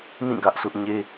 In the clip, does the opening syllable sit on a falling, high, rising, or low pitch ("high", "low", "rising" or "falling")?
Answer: falling